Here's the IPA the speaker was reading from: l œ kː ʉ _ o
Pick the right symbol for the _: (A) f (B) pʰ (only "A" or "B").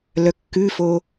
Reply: A